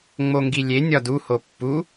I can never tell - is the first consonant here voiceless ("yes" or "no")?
no